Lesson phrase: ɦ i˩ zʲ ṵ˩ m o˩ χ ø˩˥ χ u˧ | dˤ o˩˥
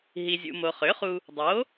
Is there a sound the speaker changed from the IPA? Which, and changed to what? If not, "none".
none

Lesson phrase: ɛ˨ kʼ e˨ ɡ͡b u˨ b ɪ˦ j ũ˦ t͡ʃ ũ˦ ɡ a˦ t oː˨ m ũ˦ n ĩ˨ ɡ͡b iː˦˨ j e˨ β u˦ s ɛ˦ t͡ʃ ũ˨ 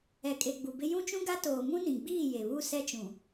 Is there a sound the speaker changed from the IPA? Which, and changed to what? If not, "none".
none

